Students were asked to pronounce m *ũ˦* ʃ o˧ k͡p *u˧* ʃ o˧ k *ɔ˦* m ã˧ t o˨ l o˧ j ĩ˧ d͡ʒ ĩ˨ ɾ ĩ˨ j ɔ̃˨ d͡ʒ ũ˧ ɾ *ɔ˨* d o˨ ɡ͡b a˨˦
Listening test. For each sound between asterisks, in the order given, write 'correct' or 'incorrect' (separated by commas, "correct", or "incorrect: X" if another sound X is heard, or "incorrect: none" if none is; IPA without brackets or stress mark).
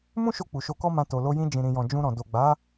correct, incorrect: u˨, correct, incorrect: ɔ̃˨